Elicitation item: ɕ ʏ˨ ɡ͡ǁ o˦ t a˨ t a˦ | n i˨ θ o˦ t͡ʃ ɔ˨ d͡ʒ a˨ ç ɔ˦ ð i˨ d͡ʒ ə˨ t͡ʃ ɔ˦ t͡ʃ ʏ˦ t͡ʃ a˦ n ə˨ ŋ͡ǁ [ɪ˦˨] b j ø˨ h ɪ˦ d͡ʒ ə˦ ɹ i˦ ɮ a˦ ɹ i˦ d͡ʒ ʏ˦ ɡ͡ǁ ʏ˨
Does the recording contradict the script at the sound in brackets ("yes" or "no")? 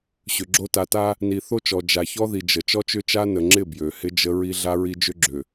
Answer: no